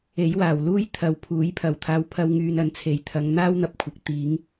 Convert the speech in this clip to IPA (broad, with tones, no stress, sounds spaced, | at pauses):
e˨˥ j w aː˨˩ w l uː˥ j t̪ʰ ɐ˨ w pʰ uː˨˥ j pʰ ɐ˨˩ w t̪ʰ aː˧ w pʰ ɐ˧ w ŋ yː˨ n ɐ˨˧ n t͡sʰ e˨˩ j t̪ʰ ɐ˨˧ ŋ n̪ aː˥ w n̪ ɐ˧ p̚ kʷʰ ɐ˨˥ k̚ t̪ iː˨˥ ŋ